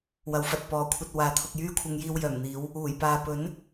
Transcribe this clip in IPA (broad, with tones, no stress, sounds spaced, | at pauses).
w ɐ˨˧ w f ɐ˨ t̚ p ɔː˨ kʷʰ ɐ˧ t̚ w aː˨˧ t̪ʰ ʊ˧ k̚ j yː˥ kʷʰ ɪ˧ ŋ j iː˧ w j œː˨˩ m n̪ iː˨˧ w | uː˨˩ j p aː˨ p ɵ˨˥ n